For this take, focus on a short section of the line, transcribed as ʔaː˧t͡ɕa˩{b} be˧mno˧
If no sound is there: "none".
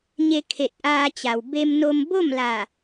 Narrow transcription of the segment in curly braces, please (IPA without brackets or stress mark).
w